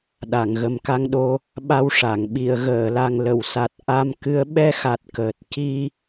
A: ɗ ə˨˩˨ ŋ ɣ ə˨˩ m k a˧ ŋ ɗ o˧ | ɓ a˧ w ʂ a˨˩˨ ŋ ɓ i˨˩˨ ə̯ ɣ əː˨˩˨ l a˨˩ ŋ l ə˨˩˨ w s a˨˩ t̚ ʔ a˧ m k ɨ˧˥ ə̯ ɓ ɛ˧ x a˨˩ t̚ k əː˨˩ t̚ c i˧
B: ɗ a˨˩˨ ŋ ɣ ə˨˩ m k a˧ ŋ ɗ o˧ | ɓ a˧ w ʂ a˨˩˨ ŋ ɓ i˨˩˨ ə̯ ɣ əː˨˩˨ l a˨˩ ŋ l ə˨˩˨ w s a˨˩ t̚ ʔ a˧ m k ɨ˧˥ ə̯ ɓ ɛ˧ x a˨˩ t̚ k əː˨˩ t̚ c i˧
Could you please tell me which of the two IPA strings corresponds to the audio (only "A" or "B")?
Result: B